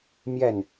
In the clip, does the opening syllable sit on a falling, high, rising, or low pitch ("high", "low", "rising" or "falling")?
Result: falling